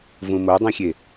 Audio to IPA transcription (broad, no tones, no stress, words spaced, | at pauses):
vũmodˤĩxʲe